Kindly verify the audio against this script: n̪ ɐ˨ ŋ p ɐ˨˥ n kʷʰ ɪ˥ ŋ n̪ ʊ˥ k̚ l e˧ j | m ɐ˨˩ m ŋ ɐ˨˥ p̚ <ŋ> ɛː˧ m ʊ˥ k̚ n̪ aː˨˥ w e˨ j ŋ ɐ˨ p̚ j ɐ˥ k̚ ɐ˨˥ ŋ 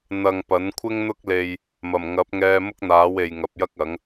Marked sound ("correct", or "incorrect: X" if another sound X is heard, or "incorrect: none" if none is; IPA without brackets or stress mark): correct